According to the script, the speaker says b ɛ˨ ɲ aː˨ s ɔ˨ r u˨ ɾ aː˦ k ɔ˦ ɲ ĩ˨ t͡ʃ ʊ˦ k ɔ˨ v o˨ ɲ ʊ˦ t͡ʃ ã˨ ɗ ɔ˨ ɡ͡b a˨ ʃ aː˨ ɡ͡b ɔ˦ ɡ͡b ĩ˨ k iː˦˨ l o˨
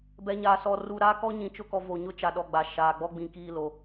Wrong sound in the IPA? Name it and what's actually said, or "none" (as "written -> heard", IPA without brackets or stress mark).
ã˨ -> a˨